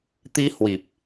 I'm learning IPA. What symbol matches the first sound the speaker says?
t̪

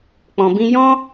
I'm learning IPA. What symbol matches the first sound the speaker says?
k͡p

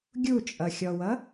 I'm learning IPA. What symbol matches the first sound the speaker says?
ɡʲ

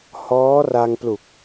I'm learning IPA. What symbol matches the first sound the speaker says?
h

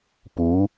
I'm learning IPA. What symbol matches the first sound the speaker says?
p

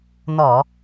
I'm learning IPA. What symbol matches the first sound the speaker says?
n̪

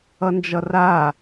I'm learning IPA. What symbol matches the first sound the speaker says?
ʌ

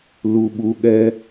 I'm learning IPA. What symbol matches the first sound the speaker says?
l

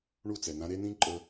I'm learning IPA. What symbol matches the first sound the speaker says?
ɳ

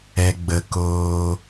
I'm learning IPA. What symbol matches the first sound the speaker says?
ɛ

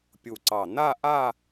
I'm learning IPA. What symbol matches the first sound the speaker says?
pʲ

